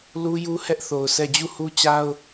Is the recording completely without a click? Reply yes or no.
yes